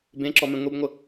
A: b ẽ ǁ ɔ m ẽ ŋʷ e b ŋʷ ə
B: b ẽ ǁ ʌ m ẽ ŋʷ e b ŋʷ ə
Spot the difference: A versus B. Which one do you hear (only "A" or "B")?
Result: A